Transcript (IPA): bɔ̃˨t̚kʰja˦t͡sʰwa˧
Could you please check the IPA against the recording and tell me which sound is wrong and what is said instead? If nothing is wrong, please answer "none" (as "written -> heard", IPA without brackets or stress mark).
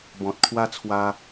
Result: j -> w